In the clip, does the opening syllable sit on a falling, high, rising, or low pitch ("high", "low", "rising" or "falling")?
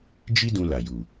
high